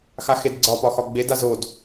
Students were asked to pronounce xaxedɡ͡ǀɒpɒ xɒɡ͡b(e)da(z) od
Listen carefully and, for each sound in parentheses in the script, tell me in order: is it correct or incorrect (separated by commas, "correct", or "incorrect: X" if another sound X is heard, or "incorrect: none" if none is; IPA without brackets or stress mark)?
correct, correct